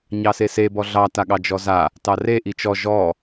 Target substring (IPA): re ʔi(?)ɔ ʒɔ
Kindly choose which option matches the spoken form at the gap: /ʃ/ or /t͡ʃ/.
t͡ʃ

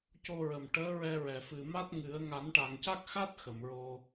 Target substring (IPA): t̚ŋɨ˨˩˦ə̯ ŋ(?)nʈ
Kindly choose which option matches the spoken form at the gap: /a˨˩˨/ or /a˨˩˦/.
a˨˩˦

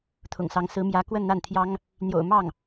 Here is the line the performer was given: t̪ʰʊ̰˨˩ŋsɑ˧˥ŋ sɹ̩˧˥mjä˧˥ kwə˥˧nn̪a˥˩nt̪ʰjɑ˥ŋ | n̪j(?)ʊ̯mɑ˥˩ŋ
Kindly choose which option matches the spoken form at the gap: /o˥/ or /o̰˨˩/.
o̰˨˩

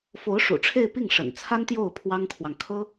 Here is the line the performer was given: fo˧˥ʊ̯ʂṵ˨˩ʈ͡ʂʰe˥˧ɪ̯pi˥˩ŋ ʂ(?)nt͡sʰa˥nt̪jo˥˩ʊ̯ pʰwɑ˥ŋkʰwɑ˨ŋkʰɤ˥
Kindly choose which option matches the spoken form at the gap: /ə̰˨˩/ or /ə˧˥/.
ə̰˨˩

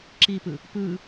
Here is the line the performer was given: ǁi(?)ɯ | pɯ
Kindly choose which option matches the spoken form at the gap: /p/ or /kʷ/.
p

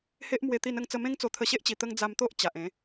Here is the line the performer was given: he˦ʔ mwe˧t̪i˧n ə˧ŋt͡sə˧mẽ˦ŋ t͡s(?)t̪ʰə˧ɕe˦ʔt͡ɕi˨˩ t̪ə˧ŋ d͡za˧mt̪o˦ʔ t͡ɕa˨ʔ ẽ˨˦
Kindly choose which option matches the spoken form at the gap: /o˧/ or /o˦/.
o˧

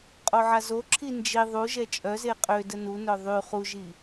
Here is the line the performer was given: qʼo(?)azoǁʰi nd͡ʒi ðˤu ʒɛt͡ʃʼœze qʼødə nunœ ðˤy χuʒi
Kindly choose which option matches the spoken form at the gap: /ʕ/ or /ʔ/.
ʕ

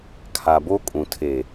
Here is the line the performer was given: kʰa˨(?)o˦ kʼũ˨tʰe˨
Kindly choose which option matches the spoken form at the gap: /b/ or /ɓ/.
b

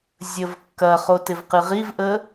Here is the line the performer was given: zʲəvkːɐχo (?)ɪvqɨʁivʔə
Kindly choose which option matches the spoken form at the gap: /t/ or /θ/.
t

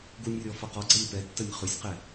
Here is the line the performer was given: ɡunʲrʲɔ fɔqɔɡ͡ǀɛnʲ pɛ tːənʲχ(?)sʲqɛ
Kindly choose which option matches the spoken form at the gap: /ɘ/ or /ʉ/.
ʉ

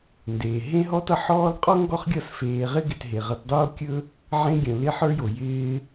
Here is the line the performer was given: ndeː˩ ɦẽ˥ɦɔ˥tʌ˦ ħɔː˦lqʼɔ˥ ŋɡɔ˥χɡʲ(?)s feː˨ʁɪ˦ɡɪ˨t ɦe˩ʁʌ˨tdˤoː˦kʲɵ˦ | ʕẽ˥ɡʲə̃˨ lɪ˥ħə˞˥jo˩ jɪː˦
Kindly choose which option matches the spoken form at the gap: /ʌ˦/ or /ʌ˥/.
ʌ˦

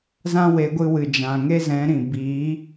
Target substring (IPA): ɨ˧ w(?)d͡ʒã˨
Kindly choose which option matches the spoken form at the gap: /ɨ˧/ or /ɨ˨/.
ɨ˨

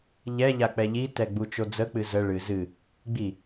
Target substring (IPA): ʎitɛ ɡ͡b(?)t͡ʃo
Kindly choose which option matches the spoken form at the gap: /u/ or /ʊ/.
u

